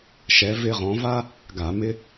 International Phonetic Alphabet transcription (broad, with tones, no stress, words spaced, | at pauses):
ʃɛ˨˦ vɪ˥ ʁɔ̃˨˦va˥ | ɡa˧˩˧ mɪ˥